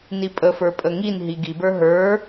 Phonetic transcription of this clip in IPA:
n i pʼ ə f ə˞ pʼ ə ŋ i n ɦ i ɡ i b ə˞ ɦ ə˞

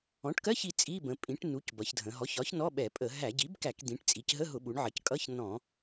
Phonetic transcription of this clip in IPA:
ɔ̃˩˥ ʈ k ɜ˧˥˧ ç i˩˧ t͡sʼ i˧˥˧ b ə̃˩˧ pʼ ĩ˩˥ ʈ n u˩˥ c b ʌ˩˧ ç dʱ ə̃˩˧ ɦ ɔ˩˥ ç ɒ˩˥ ç n ɔ˧˥˧ ɓ ɛ˧˩˧ pʼ ə˧˩˧ ɦ æ˧˩˧ ɟ i˩˥ b k æ˧˩˧ k d̪ ĩ˩˧ ʈ t͡sʼ i˩˧ c ɦ ə˧˥˧ ɦ ʊ˧˩˧ ɓ u˩˧ ɳ ʕ ə˩˧ c kʼ ʌ˧˥˧ ç n ɔ̃˧˩˧

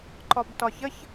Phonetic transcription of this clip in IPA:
ǃ ɒ b t ɒ ç ə ç

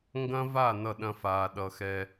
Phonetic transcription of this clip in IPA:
ŋ ɡ ɐ̃˦ v a˦˨ n ʌ˦˨ ɗ ɐ̃˦ f aː˨ ɗ ʌ˨ x ɛ˦

